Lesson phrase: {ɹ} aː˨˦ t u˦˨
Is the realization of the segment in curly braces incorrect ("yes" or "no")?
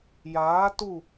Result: yes